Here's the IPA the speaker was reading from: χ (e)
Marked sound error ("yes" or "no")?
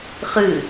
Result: yes